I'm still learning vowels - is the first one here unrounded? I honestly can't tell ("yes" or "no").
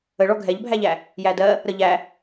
yes